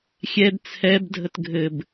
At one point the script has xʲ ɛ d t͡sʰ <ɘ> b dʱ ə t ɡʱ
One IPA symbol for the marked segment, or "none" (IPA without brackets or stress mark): ɛ